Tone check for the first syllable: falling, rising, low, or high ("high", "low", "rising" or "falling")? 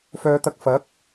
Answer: low